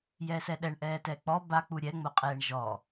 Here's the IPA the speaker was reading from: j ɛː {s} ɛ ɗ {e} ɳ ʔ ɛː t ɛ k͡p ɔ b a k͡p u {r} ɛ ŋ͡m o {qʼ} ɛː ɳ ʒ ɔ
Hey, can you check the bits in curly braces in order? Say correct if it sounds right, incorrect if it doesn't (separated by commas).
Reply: correct, incorrect, incorrect, correct